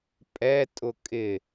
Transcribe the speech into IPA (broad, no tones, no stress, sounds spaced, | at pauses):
pʼ ɛ tʼ ʊ kʼ ɪ